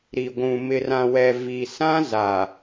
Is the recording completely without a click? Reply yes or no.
yes